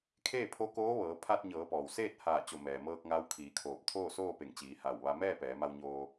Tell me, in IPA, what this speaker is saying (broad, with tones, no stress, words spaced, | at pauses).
kʰeː˥˨pʰo˧˥koː˧˥ʋɤː˩˧ pʰaː˧t̚ɲɤː˩˧pɔː˩w seː˥˨t̚haː˧˩ t͡ɕo˧˩mɛː˩mɤː˧k̚ ŋa˧˥wkʰiː˩˧kʰoː˧˩p̚ t̪ʰoː˥˨soː˥˨pe˧˩ŋt͡ɕiː˩˧ ha˧˩wʋa˧ mɛː˥˨pɛː˩˧ma˧w ɲoː˧